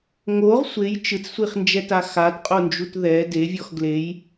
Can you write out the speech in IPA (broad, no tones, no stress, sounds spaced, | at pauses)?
ŋ o ʁ sʷ e j t͡ʃ ɯ t͡s sʷ i χ n d͡ʒ ɛ t a x a t qʼ o n d͡ʒ u t ð ɛ d e vʲ ɔ x ɡ l e j